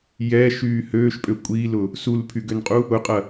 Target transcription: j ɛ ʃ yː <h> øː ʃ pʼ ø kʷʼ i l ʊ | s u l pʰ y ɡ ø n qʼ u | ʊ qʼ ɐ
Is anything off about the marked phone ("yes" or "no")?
no